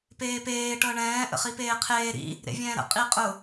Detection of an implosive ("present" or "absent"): absent